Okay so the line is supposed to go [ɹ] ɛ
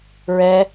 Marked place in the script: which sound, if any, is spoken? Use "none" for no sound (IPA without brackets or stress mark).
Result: ɹ